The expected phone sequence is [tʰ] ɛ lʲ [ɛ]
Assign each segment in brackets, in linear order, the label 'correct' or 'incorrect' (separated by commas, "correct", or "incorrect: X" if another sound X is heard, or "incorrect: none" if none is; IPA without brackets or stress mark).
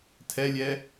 correct, correct